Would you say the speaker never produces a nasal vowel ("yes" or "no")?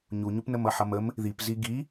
yes